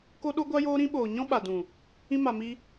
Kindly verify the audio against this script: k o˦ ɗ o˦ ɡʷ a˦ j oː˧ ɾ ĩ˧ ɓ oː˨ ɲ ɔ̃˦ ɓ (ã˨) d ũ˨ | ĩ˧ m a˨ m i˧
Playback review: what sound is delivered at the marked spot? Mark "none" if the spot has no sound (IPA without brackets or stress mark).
a˨